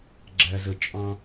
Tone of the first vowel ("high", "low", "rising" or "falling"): low